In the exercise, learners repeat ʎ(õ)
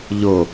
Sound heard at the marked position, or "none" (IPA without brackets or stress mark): o